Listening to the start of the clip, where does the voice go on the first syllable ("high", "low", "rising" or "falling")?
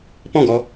falling